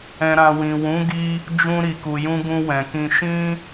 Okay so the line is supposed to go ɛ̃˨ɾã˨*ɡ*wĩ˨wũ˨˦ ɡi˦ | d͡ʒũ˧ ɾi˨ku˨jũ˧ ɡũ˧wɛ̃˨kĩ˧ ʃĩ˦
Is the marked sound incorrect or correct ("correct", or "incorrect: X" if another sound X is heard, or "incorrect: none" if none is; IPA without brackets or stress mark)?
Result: incorrect: none